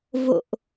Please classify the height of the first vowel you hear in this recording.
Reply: mid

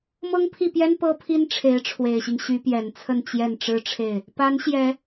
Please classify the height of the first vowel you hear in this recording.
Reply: mid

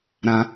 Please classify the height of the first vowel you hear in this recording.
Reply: low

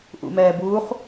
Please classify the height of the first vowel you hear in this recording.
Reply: high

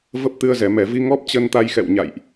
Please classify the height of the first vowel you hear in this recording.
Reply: mid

